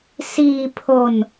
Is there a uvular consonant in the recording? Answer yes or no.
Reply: no